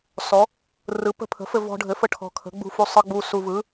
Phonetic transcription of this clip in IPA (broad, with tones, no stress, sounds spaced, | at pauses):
s ɔ˨˥ | r ɯ˨˥ p ə̤˧ pʰ ə̤˨˥ f ɘ˧ v ɔ̤˧ ɖʱ ɘ˨˥ f ə˧ ʈʰ ɔ̤˧ kʰ ə̤˨˥ ɡ͡b ṳ˧ f u˧ sˤ ɯ˧ ɡ͡b u˧ s u˧ v ɯ˨˥